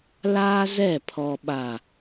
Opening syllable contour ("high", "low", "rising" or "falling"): high